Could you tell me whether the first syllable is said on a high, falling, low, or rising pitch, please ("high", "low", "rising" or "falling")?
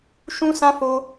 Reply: high